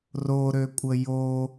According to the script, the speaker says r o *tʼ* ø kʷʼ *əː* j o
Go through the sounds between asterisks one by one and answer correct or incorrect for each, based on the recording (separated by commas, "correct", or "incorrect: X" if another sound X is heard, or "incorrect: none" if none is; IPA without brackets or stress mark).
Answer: incorrect: ɾ, incorrect: ə